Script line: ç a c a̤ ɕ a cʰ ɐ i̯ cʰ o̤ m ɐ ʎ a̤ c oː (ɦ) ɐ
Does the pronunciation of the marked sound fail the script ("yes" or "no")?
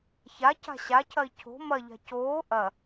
yes